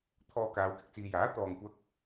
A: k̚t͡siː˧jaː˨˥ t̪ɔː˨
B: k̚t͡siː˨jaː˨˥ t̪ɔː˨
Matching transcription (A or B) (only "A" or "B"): B